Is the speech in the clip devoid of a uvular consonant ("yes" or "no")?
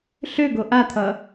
yes